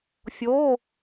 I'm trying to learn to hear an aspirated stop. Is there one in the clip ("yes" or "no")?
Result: no